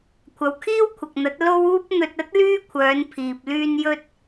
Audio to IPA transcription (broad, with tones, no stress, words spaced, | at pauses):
kʷʰɐ˨˧wkʰiː˥wkʷʰɐ˨k̚n̪ɐ˨˥t̚ lo˥wuː˥p̚ n̪ɵ˧t̚ɐ˥t̚ lyː˥kʷʰœː˨˧n pʰiː˨p̚ lyː˧njɵ˧t̚